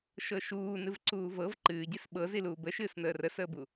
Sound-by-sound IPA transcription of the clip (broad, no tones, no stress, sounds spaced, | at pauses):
ʃ ɤ ʃ uː n ɨ v ǀ uː v ɤ v ǃ ɨː ɟ i s ɓ ɤ z i l uː b ə ʃ ɨː s n əː r ə s əː b u